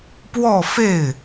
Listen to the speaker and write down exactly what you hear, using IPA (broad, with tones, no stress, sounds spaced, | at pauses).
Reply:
p w ɔ˥˧ f e˥˩ ɪ̯